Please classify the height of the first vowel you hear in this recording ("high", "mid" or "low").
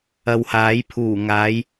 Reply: low